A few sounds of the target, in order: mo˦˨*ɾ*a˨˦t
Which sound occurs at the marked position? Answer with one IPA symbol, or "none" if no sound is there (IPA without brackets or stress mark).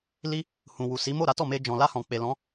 ɾ